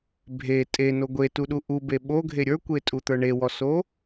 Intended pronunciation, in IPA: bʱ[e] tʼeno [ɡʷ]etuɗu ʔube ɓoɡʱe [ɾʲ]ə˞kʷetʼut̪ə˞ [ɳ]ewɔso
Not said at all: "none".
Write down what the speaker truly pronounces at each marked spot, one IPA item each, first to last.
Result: e, ɡʷ, ɾʲ, ɳ

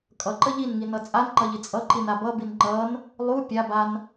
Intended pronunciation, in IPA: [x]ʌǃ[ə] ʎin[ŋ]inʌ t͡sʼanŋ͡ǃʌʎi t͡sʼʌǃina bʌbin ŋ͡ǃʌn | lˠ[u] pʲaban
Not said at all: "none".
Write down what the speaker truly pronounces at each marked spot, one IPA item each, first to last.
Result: kʼ, ə, ŋ, u

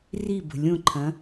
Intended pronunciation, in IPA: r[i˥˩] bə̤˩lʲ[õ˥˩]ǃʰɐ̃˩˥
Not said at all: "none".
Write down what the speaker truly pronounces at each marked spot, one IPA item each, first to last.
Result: i˥˩, õ˥˩

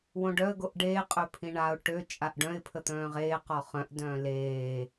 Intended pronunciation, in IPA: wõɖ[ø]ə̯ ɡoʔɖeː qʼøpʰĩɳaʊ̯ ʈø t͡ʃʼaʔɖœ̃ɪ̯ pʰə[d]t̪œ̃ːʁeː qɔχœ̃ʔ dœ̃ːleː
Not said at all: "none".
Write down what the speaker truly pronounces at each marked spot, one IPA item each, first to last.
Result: œ, none

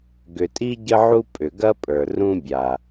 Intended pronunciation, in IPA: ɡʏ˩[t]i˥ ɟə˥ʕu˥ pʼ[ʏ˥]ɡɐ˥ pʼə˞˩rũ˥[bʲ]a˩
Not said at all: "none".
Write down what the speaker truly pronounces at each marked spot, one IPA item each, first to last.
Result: tʼ, ʏ˩, bʲ

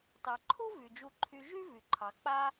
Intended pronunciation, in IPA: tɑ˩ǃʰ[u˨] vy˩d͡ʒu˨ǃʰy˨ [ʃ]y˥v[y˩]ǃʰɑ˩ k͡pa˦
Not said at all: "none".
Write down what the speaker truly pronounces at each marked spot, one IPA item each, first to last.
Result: u˥, ʒ, y˩

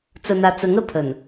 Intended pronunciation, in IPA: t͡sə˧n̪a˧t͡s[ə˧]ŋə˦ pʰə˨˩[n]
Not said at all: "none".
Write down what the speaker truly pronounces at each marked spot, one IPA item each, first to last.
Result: ə˧, n

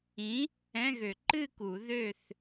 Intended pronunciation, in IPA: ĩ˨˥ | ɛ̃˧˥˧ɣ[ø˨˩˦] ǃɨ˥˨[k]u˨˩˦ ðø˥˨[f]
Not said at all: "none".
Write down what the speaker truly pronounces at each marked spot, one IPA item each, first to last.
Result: ø˨˩˦, k, θ

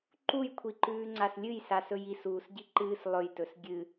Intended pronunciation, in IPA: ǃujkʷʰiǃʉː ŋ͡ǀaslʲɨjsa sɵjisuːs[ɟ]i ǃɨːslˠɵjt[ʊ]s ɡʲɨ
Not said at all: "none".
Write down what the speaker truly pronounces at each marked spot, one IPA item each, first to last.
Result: ɟ, ɵ

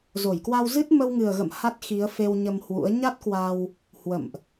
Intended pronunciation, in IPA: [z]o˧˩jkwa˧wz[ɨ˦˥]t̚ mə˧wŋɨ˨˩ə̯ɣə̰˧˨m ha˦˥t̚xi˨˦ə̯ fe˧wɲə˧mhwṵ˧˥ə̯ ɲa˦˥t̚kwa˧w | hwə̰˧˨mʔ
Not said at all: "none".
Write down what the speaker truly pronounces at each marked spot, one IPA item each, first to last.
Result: z, ɨ˦˥

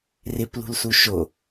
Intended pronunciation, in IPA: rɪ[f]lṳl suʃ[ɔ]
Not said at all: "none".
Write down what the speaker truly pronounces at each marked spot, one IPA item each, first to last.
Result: p, o

